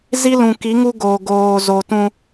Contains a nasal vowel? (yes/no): yes